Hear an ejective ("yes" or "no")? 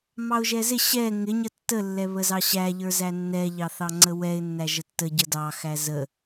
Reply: no